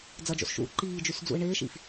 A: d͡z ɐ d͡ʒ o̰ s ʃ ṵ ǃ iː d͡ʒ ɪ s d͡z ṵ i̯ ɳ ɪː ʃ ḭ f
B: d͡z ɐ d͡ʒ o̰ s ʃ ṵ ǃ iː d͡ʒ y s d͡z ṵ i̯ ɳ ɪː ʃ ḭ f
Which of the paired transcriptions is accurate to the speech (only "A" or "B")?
B